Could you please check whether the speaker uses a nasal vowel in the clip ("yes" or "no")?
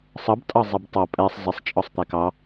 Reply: no